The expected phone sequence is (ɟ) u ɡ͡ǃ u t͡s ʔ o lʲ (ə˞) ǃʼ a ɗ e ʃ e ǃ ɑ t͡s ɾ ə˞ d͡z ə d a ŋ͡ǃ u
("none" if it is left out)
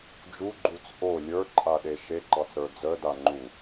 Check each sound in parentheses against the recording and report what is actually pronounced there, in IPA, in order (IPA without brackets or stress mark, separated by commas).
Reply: d͡ʒ, ə˞